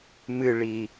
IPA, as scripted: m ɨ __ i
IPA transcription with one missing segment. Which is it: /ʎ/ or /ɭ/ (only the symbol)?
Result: ɭ